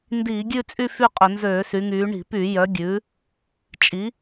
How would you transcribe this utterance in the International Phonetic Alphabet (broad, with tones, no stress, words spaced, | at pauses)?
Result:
ndiː˧˩˧ɡʲʉ˦˨t͡sʼy˦˨ fy˦˨qʼɵ˧˩˧ nzøː˧˩˧sy˩˧ŋyː˩˧ ɳi̤˧˩˧py˧˩˧ jœ˩˧ɡʲʉ˩˧ | t͡ʃʼi˩˧